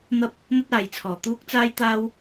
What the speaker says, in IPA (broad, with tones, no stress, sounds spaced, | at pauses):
n̪ ɐ˧ p̚ | n̪ ɐ˥ t̚ aː˨ j t͡sʰ ɔː˨˩ t̪ uː˥ k̚ t͡s aː˥ j t̪ aː˥ w